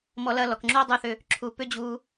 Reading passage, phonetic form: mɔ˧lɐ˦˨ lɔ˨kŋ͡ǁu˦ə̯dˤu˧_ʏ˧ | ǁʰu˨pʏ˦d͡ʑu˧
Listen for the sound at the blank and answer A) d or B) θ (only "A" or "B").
B